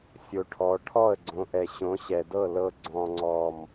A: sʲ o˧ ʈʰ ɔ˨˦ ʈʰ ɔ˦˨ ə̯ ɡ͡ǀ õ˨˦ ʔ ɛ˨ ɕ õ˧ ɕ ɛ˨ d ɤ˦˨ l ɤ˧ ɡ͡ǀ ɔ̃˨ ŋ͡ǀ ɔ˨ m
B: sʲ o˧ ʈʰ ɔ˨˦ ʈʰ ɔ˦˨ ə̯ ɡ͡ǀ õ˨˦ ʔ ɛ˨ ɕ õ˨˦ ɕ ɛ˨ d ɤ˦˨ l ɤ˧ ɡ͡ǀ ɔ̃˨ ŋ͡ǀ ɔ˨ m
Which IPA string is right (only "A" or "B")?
B